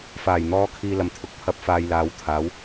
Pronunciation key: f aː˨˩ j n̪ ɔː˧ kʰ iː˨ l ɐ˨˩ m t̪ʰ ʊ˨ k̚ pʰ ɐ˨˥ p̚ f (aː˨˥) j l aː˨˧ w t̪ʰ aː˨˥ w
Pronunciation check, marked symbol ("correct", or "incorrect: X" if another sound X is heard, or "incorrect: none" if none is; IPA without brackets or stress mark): incorrect: aː˨